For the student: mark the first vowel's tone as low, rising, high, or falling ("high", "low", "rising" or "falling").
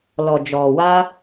low